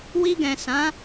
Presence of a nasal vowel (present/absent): present